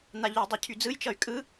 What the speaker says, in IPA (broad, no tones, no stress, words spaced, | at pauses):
n̪aʎydˤɯcʰy d͡zɯjt͡ʃʌy̯ kʼɯ